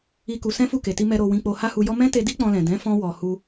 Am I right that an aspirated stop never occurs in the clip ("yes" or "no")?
yes